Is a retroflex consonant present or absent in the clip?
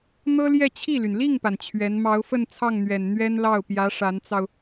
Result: present